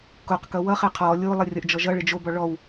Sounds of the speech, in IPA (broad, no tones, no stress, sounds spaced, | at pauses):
k o q k ʌ w ʌ χ ɪ qʰ ɔ lʲ o lˠ ɪ rʲ ʌ ʔ d͡ʒ ɔ ʒ ʌ ɭ ɪ d͡ʒ o b ɔ ɭ ɔ w